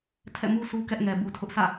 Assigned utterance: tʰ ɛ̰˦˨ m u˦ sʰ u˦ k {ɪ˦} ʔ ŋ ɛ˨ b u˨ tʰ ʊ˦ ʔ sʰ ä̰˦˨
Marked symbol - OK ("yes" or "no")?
no